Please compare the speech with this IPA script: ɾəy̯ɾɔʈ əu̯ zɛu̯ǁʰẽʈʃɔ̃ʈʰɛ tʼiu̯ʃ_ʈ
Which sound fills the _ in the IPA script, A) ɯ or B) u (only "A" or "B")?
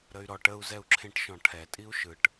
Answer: A